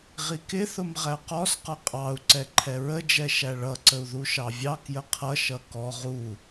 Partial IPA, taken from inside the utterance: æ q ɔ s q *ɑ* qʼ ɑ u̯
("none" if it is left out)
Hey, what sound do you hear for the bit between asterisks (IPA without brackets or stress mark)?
ʌ